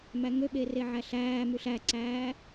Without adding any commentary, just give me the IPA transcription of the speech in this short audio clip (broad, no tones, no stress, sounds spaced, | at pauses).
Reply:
m æ ŋ ø ɓ e r e ʕ æ ɬ æː m ʉ ɬ æ ǀ æː